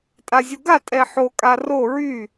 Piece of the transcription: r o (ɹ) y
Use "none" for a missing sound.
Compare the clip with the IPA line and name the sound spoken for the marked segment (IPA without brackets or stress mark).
ɹ